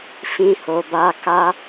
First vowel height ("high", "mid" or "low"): high